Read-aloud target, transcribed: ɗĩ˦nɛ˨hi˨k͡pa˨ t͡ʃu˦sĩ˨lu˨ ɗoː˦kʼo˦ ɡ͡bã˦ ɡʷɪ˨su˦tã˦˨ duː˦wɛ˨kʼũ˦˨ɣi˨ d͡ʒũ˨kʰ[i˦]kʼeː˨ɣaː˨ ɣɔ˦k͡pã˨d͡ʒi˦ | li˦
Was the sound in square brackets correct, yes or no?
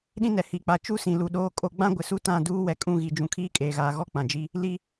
no